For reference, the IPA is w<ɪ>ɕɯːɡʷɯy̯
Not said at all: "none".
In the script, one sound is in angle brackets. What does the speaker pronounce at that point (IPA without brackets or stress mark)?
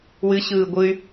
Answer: ɨ